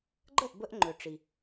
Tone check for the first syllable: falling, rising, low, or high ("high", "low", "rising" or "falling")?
falling